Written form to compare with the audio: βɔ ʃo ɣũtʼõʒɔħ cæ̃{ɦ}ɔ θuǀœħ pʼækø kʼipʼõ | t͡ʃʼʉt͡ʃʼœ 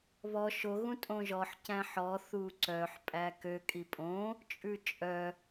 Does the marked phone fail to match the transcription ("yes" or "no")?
yes